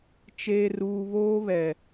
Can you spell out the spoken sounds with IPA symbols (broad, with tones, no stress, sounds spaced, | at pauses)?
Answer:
t͡ʃ eː˨ r uː˨ β oː˦ β ɛ˨